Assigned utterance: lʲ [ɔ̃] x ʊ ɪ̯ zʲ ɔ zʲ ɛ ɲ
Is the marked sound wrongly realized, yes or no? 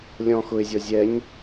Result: no